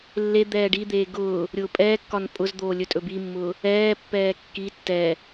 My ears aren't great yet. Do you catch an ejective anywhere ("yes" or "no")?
yes